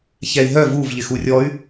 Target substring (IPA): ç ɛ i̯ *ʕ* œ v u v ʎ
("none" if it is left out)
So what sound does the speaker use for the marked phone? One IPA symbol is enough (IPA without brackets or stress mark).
ɦ